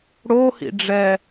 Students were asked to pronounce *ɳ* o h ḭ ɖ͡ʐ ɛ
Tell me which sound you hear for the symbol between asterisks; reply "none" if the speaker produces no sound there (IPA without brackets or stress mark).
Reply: ɽ